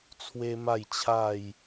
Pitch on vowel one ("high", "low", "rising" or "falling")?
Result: high